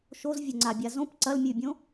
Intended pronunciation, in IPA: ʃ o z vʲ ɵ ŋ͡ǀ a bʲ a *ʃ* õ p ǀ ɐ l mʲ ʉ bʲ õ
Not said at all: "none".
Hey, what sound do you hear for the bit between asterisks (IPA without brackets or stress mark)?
z